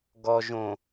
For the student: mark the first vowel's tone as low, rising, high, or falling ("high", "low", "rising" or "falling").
low